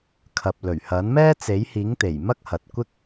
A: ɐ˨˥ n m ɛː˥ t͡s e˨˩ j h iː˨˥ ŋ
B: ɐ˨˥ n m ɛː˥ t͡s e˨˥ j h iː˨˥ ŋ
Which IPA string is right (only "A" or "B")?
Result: B